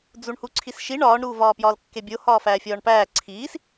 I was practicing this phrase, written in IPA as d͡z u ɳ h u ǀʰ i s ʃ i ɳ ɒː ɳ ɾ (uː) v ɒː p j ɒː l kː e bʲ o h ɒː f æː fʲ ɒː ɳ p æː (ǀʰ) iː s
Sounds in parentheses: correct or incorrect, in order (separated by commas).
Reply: correct, correct